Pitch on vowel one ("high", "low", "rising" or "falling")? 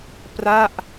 falling